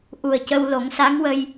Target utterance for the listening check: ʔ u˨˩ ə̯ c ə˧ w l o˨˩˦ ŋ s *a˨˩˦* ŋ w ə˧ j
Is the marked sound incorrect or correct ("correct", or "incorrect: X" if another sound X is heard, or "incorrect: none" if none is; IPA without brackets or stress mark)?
incorrect: a˧˥